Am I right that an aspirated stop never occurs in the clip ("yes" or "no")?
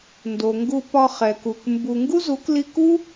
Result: yes